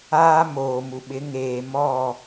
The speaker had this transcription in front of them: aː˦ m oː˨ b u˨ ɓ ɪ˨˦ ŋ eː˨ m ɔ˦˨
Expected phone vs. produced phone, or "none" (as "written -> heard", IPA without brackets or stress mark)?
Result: b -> m